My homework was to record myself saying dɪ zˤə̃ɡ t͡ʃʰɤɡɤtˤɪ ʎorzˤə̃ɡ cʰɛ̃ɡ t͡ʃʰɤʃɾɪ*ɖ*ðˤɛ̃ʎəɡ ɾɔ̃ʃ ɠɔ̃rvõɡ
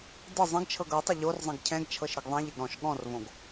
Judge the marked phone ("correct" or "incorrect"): incorrect